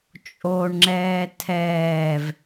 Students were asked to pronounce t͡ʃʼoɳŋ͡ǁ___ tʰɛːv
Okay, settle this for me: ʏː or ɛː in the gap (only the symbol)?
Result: ɛː